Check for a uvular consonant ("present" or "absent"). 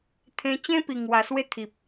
absent